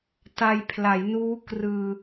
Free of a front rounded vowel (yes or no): yes